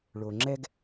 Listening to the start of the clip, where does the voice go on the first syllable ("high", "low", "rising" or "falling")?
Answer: low